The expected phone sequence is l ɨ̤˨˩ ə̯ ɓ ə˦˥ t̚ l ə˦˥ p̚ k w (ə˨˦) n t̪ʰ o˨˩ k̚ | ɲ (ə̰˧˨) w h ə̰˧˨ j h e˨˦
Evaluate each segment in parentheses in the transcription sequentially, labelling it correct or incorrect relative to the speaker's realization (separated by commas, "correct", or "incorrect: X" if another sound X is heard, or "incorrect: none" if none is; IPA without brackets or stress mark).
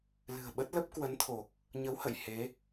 correct, incorrect: ə˨˦